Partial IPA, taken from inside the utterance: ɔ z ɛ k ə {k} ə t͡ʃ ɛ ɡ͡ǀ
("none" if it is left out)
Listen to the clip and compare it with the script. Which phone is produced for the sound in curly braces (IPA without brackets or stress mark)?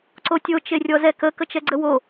k